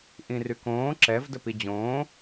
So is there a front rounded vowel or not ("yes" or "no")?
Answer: yes